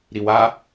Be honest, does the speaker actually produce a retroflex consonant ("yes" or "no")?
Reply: no